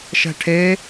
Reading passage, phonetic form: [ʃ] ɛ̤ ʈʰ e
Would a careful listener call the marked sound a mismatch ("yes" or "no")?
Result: no